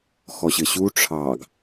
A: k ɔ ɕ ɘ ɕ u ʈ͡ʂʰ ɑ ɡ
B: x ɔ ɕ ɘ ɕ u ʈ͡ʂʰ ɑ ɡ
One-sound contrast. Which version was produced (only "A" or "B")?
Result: B